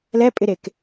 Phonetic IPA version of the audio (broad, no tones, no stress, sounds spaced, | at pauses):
l ɛ pʼ ɪ ɾ e k